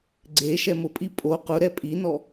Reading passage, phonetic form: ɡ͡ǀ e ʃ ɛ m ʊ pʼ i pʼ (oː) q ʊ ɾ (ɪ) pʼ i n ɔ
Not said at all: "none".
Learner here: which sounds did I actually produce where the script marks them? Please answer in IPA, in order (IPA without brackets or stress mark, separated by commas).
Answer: o, ɛ